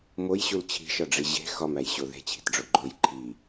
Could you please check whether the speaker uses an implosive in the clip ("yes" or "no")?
no